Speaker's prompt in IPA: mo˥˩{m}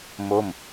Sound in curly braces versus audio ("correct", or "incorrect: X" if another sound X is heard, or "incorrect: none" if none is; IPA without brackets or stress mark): correct